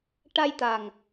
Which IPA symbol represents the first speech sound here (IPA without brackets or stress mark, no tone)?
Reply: ʈ